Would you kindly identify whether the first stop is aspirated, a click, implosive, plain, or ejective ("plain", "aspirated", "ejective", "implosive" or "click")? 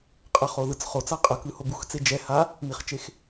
ejective